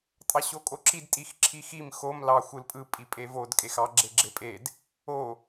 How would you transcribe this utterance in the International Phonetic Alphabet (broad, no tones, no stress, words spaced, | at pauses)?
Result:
tʼɑɕokʼoǁid tʼixǁʰixim xom lɑ xʷɯlpʼɯ pʼipʼevod kʼexɑ ɡ͡ǁeɡ͡ǁepʼed | o